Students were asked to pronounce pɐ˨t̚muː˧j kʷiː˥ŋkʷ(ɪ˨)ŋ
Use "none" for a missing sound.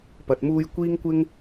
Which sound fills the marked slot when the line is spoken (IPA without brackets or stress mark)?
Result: ɪ˥